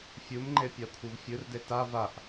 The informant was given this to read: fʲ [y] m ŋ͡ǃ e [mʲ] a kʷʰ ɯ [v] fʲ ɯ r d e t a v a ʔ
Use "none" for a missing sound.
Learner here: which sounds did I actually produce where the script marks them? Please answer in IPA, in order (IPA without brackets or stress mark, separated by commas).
u, pʲ, v